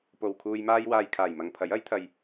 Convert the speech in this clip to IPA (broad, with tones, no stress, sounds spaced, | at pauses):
p o˨ w kʰ uː˧ j m aː˧ j w aː˨ j kʰ aː˨˩ j m ɐ˨ ŋ pʰ ɐ˨˥ j ɐ˨˥ j t̪ʰ ɐ˧ j